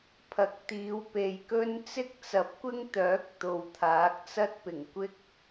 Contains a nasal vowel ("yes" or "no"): no